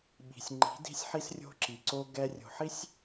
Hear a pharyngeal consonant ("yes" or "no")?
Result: yes